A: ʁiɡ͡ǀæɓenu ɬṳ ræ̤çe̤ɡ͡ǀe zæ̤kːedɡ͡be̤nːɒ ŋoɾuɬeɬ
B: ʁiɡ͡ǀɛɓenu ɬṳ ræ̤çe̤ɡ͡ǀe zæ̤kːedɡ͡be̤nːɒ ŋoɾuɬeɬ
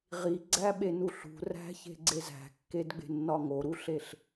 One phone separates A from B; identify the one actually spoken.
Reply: A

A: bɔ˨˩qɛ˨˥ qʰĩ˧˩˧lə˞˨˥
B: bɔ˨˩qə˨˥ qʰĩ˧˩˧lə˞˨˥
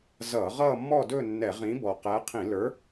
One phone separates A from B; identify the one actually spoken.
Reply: A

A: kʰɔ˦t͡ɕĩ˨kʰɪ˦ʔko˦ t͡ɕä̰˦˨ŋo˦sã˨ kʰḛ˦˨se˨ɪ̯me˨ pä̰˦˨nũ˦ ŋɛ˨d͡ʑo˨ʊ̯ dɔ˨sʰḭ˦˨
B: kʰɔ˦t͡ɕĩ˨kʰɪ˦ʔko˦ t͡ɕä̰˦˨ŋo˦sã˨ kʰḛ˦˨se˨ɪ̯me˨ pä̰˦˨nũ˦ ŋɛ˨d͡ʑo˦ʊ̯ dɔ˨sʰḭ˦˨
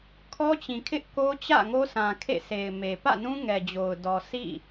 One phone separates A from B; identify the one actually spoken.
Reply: A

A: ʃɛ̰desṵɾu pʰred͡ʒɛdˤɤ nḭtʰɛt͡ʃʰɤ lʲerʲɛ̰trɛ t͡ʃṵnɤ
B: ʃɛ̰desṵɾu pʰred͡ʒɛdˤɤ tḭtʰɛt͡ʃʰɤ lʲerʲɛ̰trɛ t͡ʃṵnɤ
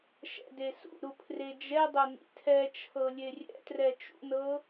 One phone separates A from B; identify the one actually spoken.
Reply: A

